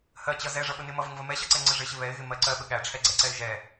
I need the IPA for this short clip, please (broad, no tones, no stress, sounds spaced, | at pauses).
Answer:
h ɜ t͡ɕ ʌ z ɛ ʐ ʌ ɓ ə n ɪ m ʌ v ə ŋ v ə m ɛ ɕ ʌ ǀ ɛ ŋ͡ǀ ə ʐ ɪ ɕ ɪ β ɛ ɪ̯ ɣ ɪ m ɜ ǀ ɜ ɓ ə ɠ æ ʈ͡ʂʰ ɛ ɡ͡ǀ ɛ ǀ ɛ ɪ̯ ʒ ɛ